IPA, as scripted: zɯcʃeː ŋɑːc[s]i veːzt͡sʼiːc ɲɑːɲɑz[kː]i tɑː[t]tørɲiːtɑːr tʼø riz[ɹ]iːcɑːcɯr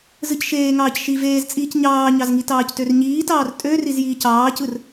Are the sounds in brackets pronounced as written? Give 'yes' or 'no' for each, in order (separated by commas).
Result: no, no, no, no